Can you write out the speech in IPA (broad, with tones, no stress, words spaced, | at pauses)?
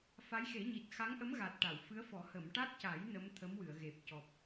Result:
fa˧˥jxe˨˩˦ɲi˨˩t̚ xa˧˥ŋʔə˧˥mɣa˨˩t̚ ʈa˨˩˨w fɨ˧˥ə̯fɔ˨˩˦ hə˨˩˨mʈa˦˥t̚ca˨˩˦j nə˧˥mt̪ʰə˧˥m wɨ˨˩˨ə̯ɣe˨˩p̚cɔ˨˩p̚